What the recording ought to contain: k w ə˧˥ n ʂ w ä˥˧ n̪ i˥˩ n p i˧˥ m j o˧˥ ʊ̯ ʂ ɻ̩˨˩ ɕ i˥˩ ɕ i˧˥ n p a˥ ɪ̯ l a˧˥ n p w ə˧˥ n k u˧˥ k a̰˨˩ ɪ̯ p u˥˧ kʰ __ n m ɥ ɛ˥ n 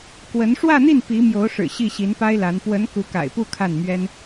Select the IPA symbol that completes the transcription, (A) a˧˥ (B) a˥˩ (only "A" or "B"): B